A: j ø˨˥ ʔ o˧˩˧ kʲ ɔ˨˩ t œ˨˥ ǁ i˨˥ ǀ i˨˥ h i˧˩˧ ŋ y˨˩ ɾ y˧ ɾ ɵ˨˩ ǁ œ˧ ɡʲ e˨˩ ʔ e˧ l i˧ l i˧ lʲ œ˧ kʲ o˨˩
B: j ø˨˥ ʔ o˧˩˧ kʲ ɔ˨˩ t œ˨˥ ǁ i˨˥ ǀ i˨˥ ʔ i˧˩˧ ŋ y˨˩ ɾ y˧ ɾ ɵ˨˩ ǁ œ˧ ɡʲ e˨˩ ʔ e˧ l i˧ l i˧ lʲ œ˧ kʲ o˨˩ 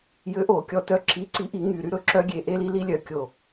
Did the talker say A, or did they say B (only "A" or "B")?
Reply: B